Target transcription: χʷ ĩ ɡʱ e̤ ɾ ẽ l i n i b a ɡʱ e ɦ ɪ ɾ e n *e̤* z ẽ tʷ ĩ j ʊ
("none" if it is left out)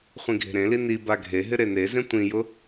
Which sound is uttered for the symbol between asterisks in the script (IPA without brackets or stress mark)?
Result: e